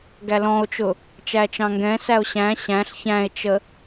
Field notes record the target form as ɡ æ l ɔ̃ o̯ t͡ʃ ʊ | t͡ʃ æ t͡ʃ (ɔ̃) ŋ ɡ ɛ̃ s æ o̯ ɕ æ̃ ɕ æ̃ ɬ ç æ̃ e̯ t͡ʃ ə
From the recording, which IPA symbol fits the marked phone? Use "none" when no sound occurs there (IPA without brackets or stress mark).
ɑ̃